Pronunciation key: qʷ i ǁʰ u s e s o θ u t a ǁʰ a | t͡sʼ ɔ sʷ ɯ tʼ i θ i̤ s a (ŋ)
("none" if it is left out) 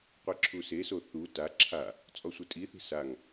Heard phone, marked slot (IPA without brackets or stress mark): ŋ